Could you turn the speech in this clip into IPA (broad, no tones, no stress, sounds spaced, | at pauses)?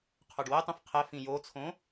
qʰ o ɖ w ɛ tˤ õ f qʰ ɛ f ĩ j o t͡sʰ õ